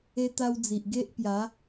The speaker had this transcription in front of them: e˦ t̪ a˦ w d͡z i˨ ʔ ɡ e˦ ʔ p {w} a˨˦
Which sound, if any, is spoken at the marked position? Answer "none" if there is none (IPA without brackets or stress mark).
j